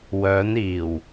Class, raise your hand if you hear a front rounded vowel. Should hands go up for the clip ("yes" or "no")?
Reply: yes